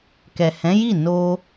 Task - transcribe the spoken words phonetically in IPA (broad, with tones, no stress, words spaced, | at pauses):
kɛ˨hɛ̃˨˦ji˦˨ no˧